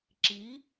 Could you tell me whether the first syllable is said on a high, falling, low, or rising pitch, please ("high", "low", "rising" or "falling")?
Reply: rising